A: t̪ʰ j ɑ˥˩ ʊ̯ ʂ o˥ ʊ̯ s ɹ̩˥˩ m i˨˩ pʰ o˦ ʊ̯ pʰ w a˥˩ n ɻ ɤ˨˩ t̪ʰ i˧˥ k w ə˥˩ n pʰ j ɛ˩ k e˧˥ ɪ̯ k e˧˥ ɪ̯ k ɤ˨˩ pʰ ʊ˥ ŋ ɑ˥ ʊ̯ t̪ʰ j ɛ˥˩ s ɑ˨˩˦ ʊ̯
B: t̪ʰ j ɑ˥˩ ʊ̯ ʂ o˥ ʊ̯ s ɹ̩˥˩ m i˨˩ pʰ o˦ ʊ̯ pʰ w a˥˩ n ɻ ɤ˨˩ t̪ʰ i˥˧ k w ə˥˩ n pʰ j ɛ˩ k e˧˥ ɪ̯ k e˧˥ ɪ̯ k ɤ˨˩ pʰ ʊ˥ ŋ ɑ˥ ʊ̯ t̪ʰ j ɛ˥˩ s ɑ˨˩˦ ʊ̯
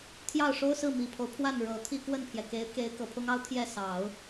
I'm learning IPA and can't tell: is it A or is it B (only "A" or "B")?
B